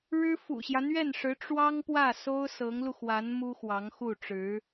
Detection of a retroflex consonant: present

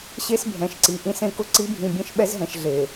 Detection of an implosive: present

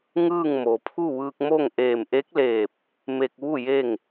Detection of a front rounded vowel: absent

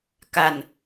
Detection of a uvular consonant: absent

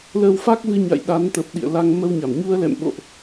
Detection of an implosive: present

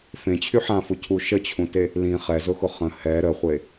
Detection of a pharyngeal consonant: present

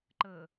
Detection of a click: present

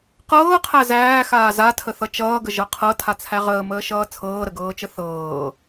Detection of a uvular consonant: present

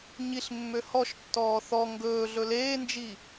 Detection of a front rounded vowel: present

